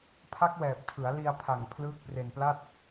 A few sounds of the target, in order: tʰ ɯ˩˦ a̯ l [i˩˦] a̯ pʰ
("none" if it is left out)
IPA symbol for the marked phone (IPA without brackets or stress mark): i˧